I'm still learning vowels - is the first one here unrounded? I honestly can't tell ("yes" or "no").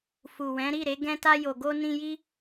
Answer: no